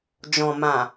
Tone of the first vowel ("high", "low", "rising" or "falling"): low